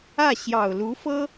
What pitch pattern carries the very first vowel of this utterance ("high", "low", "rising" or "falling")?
falling